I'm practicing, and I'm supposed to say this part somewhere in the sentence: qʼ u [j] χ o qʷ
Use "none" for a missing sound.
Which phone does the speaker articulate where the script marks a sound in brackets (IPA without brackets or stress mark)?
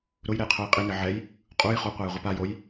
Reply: j